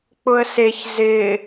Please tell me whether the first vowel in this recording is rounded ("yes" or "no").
yes